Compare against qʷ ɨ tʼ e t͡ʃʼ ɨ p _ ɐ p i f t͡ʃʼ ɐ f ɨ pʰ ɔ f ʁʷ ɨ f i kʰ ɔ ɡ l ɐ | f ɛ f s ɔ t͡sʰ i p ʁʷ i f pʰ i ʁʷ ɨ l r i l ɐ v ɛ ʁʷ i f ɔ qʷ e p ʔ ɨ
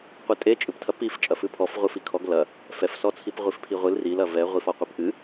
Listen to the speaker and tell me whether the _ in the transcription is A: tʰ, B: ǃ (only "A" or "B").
A